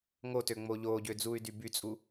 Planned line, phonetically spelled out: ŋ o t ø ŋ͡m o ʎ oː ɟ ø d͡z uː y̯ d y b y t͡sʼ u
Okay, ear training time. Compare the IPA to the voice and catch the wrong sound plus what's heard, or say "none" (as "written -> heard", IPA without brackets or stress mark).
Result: none